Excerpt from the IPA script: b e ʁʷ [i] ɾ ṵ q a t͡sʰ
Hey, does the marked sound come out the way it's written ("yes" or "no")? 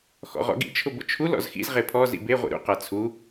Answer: no